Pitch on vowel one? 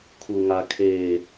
low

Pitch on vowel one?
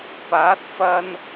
rising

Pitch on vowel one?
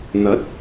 rising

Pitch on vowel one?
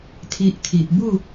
low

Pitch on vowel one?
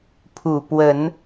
low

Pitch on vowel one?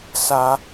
high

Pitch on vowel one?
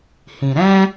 low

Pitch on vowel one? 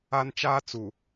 high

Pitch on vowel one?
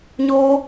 high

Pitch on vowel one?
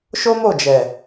high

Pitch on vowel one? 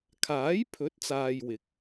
rising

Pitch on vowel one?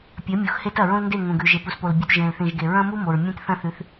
rising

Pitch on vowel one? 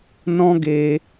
high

